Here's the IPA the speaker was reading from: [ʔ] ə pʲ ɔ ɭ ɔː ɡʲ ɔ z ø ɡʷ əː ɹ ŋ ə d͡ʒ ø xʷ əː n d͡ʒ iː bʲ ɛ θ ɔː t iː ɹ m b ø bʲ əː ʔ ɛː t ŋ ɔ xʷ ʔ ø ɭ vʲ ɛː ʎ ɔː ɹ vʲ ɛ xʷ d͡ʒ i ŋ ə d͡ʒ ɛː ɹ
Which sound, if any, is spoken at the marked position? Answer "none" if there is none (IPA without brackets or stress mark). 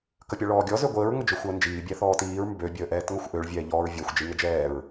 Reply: k